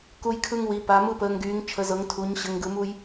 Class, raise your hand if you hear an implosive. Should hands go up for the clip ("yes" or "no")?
no